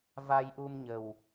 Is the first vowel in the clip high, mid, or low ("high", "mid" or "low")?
low